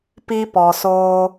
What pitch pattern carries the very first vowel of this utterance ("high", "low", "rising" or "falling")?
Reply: high